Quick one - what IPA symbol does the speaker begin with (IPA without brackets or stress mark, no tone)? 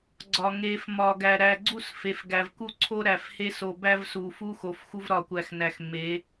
ɡ͡ǀ